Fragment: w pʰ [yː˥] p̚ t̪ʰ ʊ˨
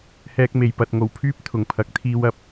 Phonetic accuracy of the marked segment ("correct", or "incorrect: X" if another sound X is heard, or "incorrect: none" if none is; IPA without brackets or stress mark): correct